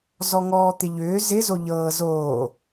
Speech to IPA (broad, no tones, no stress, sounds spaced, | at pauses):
z ɔ ŋ ɔː t̪ ɪ ʎ ʏː z ɪ z o ʎ ɤː z oː